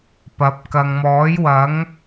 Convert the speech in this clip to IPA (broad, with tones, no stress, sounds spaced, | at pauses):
p ɐ˨˥ p̚ k ɐ˨ ŋ m ɔː˨˥ j w ɐ˨˥ ŋ